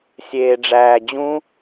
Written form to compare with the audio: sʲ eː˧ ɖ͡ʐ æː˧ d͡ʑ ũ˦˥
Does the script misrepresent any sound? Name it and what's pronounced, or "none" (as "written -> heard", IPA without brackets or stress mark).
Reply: none